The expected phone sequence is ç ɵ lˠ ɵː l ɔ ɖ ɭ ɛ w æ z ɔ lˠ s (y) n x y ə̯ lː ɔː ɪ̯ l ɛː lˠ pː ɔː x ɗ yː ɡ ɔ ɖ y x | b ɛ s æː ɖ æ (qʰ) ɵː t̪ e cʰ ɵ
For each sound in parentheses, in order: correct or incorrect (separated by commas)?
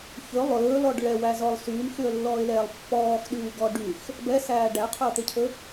incorrect, correct